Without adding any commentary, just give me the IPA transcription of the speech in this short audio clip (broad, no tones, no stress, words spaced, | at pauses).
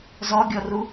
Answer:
zɔɡʲɔru